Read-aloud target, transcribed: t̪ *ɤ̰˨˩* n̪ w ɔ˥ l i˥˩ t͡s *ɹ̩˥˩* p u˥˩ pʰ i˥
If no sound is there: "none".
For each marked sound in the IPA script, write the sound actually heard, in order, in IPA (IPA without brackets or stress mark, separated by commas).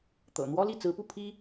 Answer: ɤ̰˨˩, ɹ̩˧˥